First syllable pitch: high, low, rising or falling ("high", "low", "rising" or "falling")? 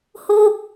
falling